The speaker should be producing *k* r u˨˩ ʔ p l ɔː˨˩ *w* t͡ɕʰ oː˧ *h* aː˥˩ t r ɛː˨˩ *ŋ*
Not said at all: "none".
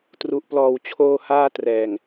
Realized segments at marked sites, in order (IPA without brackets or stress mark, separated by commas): t, w, h, ŋ